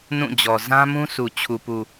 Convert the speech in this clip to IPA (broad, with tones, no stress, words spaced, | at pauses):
nũ˦˨ d͡ʑɔ˨ zã˦mũ˦sʰu˨ t͡ɕʰu˨pu˨